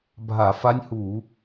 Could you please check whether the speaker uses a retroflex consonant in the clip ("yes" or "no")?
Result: no